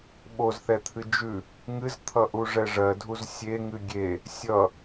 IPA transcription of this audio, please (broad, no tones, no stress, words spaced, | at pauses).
ɓozθɛt̪ʰɨ d͡ʒʉ | ŋɨzt̪ʰʌʔuʐɛ ʐɜdʱuz sʲeŋɨ ɡʲe | sʲʌ